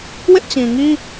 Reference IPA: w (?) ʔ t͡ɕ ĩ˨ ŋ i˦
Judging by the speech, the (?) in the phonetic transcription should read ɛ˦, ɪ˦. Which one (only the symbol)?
ɪ˦